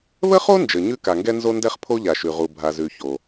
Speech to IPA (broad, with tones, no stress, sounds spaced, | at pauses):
β ə˥ χ o˥ n d͡ʒ ə˩ ɲ ʉ˥ k a˩ ŋ ɡ ɛ˥ n z o˥ n d ɛ˥ χ pʰ o˥ ʎ a˩ ʃ ʉ˩ ʁ u˩ bʱ a˩ z ʉ˩ ç o˩